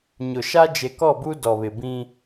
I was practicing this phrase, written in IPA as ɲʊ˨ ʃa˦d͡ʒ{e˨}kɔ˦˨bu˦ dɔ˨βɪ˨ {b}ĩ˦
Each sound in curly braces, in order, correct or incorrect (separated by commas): correct, correct